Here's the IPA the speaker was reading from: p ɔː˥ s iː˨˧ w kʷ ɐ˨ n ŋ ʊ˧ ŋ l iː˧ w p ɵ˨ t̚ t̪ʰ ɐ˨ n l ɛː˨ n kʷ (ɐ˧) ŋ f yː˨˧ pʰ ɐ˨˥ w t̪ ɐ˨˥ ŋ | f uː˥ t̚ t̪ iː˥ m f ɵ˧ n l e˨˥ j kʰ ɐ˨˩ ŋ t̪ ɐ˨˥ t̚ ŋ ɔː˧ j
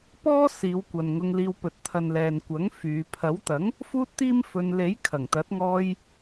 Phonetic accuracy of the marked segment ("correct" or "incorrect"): incorrect